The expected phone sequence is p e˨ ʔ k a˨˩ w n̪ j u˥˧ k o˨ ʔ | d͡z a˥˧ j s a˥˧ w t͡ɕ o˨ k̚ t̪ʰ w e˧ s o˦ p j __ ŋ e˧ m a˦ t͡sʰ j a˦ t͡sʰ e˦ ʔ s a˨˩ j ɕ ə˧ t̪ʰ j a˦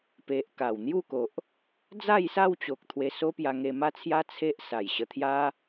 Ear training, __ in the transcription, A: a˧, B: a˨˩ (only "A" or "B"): A